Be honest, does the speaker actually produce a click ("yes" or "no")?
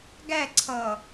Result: yes